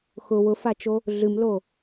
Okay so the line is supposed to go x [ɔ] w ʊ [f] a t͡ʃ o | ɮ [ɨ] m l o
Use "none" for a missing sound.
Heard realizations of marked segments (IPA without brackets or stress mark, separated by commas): ʊ, f, ɨ